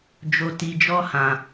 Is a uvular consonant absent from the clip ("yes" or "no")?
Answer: yes